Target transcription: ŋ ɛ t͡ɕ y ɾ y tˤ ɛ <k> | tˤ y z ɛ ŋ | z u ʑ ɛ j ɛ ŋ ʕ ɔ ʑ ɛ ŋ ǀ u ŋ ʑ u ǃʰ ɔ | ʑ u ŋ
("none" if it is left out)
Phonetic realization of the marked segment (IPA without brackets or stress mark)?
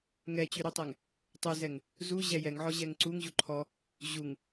ŋ